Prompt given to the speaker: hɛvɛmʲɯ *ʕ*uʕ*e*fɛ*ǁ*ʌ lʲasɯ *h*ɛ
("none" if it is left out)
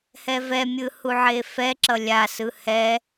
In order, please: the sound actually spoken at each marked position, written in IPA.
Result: h, e, ǁ, h

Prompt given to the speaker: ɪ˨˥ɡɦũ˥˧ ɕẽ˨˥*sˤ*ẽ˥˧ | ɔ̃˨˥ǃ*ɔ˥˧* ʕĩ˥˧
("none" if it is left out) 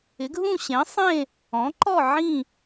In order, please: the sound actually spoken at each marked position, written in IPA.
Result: sˤ, ɔ˥˧

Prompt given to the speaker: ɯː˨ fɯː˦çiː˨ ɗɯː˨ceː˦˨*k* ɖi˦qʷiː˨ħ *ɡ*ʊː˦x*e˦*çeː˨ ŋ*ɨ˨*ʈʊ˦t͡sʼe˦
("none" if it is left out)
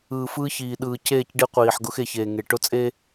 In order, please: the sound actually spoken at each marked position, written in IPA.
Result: c, ɡ, e˨, e˨

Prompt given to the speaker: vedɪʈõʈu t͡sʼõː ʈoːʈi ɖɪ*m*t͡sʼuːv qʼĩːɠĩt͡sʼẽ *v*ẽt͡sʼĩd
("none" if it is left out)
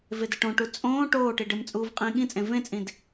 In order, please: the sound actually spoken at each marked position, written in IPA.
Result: m, v

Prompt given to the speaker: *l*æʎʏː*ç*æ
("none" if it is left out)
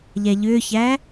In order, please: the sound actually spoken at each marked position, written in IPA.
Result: ʎ, ç

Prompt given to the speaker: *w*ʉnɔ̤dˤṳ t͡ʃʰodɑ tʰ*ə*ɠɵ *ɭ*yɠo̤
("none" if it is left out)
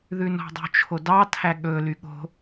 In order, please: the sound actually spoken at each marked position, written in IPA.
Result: ð, æ, l

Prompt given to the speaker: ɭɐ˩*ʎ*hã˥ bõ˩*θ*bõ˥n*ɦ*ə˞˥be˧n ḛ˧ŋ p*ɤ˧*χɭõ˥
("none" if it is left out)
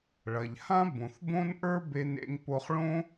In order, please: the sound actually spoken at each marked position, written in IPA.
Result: ʎ, θ, ʔ, o˧

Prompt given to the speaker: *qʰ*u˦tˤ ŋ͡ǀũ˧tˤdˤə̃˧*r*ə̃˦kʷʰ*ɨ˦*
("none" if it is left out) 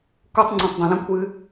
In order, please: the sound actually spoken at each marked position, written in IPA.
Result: k, l, ɨ˦

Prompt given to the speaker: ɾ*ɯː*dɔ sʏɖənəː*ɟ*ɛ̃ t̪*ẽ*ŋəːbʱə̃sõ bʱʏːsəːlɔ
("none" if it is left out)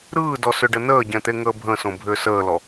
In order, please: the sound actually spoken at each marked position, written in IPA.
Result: ɯː, ɟ, e

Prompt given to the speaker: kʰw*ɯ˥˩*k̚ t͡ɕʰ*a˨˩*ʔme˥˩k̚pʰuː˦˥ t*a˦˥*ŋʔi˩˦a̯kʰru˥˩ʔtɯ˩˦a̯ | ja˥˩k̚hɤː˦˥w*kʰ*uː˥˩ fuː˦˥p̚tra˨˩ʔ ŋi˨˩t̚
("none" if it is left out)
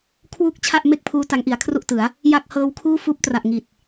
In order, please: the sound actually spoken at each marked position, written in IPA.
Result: u˥˩, a˥˩, a˦˥, kʰ

